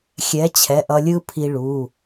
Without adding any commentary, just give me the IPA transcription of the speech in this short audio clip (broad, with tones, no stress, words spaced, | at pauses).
xʲɛ˨˥t͡ɕʰɛ˩˧˩ʔʌ˧lʲɯ˥ pʰi˧ɭu˩˧˩